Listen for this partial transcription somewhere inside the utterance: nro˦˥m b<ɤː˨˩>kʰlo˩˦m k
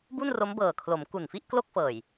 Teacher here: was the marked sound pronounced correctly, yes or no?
yes